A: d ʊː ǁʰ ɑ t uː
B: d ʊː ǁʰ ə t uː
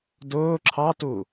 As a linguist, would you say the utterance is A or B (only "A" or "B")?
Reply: A